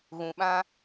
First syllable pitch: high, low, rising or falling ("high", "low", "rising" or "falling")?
low